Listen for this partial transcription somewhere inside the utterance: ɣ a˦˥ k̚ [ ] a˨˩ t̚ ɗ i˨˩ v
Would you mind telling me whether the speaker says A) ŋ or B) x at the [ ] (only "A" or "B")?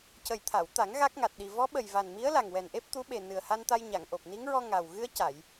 A